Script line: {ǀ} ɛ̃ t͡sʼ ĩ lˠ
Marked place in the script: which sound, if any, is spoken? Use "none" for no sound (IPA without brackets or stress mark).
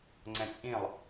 ŋ͡ǀ